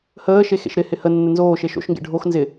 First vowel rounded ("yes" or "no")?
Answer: no